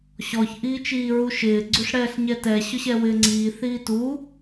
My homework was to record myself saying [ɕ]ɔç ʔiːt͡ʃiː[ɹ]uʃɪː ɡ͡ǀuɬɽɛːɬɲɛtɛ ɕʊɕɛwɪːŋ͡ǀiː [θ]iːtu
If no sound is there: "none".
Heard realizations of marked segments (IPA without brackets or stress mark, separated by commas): ɕ, ɹ, θ